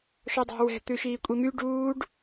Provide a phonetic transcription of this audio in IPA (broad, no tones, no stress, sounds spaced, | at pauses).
ʃ ɔ dˤ æ̤ w ɛ̤ t̪ ʉ ʃ iː kʷʼ i m y ɖ uː ɖ